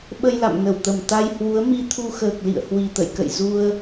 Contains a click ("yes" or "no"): no